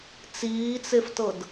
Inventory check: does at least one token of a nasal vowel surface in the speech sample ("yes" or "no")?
no